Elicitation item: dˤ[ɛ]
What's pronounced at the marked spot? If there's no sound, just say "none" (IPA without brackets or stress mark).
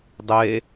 e